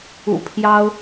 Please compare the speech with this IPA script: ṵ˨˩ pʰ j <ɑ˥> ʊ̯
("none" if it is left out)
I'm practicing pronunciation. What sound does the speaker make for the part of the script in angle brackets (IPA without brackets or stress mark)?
ɑ˥